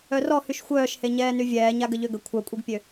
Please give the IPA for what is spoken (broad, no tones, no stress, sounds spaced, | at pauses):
œ r ɔ h y ʃ xʷ œː ʃ h e ɲ ɛː n y vʲ ɛː ɲ a ɡ ə ʎ ø ɡ ə kʷʰ œ kʷʼ i ɡ pʲ ø